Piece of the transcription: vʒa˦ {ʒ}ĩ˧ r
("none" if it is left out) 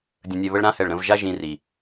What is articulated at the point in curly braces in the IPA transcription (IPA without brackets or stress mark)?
ʒ